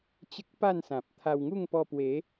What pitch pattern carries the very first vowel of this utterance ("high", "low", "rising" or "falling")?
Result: high